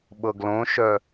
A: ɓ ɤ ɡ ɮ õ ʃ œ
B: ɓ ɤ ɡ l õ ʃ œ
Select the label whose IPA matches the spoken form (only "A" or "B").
B